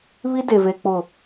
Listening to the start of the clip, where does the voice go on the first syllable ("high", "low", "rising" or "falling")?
high